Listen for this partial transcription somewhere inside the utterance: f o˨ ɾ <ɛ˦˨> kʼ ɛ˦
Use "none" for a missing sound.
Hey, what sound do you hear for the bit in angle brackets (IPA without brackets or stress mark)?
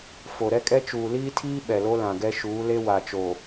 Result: ɛ˦